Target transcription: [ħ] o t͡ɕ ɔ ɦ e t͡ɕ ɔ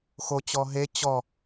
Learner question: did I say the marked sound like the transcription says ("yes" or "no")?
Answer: no